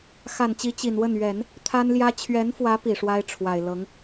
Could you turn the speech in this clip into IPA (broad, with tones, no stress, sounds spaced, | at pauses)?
x a˨˩ n t͡ɕ i˧˥ t͡ɕ i˨˩ n w ə˥˩ n ɥ ɛ˨˩˦ n | t̪ʰ a˥ n l j ä˥ t͡ɕʰ ɥ ɛ˧˥ n f w ä˧˥ p i˨˩ ʂ w a˥ ɪ̯ ʈ͡ʂʰ w a˨˩ ɪ̯ l ɤ˧˥ ŋ